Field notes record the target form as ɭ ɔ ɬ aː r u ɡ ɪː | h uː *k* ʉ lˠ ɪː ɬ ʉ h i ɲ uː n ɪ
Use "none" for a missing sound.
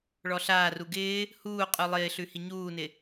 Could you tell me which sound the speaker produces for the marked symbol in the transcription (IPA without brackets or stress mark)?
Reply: qʼ